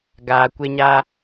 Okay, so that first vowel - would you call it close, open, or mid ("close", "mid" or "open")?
open